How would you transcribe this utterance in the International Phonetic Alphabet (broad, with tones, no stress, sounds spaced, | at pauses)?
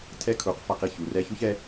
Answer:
tʰ ɛ˦ kʰ u˨˦ q f a˧ q i˦˨ ç u˨ r ɛ˧ ç u˦ ç ɛ˧